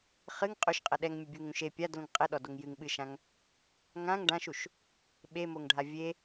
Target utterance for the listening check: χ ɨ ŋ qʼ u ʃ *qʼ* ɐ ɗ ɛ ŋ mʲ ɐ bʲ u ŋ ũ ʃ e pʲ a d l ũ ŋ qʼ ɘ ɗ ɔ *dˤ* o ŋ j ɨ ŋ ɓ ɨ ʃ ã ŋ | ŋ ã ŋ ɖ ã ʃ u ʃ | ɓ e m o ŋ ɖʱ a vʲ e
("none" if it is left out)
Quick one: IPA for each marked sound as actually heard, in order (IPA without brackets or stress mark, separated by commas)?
qʼ, d